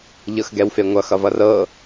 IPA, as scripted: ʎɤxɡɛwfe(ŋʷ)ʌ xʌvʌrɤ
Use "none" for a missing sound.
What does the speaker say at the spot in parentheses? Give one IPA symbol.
ŋʷ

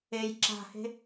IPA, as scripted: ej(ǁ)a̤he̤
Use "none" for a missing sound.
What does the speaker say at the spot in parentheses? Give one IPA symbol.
ǁ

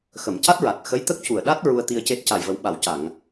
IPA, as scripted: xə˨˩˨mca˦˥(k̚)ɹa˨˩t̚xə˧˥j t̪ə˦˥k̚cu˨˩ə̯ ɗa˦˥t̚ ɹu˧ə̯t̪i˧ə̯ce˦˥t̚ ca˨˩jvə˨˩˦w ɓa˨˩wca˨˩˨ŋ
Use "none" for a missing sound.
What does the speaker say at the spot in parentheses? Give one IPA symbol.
t̚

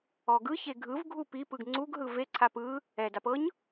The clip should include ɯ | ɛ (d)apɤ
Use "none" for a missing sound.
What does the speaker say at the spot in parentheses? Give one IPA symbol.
d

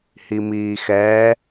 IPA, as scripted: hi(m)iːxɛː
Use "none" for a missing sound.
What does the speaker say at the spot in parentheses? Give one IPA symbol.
m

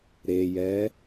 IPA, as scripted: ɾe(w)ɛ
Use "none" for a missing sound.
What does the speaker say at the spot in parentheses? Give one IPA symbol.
j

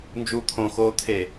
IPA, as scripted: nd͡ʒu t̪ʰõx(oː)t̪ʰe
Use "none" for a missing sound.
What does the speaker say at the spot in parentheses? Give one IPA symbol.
oː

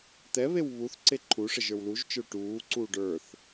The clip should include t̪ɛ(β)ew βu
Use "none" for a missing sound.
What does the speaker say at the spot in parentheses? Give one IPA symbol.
β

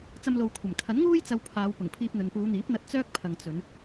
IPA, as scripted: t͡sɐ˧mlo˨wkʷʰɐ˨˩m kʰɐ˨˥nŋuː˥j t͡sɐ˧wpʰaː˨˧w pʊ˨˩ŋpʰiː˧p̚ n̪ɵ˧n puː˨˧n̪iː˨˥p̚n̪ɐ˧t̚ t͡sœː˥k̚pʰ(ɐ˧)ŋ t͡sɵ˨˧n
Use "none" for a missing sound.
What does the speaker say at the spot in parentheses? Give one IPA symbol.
ɐ˨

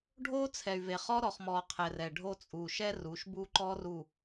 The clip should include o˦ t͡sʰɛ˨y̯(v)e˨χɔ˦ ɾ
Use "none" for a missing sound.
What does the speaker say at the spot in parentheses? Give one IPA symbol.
v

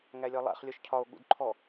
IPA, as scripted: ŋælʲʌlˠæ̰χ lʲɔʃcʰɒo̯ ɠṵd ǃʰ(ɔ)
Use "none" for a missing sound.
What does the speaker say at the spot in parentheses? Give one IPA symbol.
ɔ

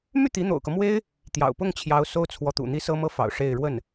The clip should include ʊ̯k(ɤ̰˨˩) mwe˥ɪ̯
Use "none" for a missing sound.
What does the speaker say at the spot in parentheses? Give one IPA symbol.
ɤ˦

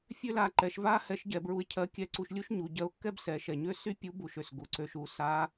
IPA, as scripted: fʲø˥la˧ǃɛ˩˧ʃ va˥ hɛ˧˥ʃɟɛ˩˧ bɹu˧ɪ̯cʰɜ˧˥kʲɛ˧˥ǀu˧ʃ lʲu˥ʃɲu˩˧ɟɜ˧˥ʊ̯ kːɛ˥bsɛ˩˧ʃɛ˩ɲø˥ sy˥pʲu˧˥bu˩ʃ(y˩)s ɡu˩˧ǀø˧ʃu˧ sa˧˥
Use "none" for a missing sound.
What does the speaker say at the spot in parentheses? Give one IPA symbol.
ø˩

